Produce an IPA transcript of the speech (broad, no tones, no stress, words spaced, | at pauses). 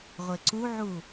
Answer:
ʁʷeǀuʕu